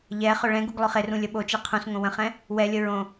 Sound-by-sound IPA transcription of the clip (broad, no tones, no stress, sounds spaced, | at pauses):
ʎ ɛ χ ø ɭ ɛ̃ ɡ u ɡ lˠ ø χ e r ũ lʲ ə ɓ o t͡ʃ e qʰ ũ s ŋ õ w ə̃ χ ɛ̃ | w ɛ lʲ ə ɹ õ